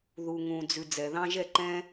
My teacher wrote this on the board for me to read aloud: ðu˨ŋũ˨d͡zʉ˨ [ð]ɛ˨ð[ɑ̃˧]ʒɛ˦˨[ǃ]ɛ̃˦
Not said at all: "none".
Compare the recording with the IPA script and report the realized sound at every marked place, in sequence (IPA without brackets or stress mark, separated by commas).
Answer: d͡z, ɑ̃˧, ǃ